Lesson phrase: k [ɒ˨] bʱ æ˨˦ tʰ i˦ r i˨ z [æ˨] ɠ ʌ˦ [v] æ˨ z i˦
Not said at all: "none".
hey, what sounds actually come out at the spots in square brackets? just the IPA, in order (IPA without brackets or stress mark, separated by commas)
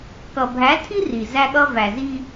ʌ˨, æ˦, v